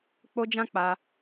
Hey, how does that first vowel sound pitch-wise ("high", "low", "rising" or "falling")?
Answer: high